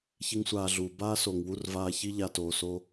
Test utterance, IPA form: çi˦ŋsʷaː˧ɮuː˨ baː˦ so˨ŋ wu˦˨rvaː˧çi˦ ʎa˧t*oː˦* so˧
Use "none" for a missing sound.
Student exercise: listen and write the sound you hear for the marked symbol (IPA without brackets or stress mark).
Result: oː˨